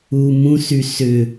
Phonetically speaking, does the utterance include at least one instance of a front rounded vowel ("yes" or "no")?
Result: yes